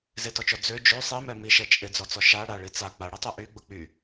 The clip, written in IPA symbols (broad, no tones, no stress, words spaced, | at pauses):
zɪtɔt͡ʃɔ d͡zø d͡ʒø sˤimɛ miʃɛ t͡ʃʼɪd͡zɔt͡sɔ ʃa ɽaɭi t͡sa k͡paɽitˤy ʔyɡ͡bʊ k͡py